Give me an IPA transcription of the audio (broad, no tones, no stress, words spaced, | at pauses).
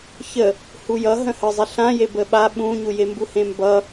çə | hujʌ ɦə̃həzˤe ɬãje bəɓa ɓũɲu jembuhẽmbʌ